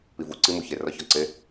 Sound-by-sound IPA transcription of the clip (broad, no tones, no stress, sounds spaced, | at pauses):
p i v u ǀ i m u ç e r ɒ ç ɒ ǀ e